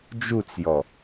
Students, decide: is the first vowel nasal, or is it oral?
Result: oral